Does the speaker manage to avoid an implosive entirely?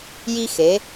yes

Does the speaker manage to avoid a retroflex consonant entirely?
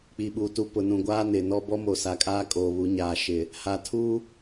yes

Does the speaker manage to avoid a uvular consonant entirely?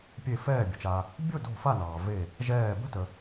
yes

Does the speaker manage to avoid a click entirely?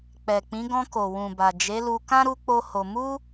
yes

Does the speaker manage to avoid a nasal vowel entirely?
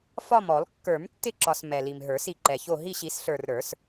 yes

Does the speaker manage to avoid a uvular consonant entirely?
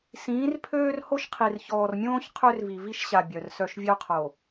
no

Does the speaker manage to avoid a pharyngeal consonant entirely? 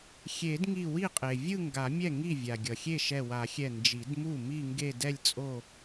yes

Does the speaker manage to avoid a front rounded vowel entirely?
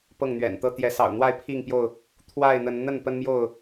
yes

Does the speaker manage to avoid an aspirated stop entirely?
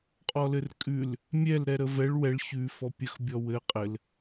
yes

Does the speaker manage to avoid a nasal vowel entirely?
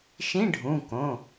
no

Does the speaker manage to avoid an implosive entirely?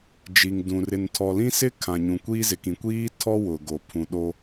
no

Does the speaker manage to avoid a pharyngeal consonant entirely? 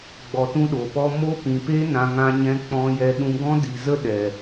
yes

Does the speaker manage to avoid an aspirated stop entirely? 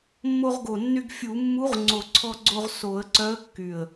no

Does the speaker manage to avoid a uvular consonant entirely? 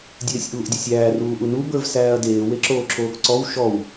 yes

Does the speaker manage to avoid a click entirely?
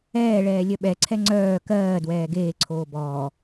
no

